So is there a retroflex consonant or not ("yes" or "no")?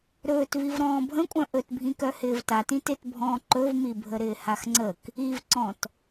no